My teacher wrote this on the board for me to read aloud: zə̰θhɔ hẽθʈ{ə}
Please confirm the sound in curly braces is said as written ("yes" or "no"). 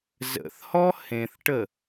yes